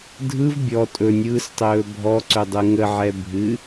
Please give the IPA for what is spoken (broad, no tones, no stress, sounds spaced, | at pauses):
dʱ ɯ v bʲ ɔ tʼ ɵ nʲ ɯː s tˤ ɵː bʱ ɔ ǀ ɵ dˤ ɯ ŋ ə ʕ ɛ bʱ ɨ